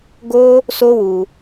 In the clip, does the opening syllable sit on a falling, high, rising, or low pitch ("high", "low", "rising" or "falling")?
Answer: high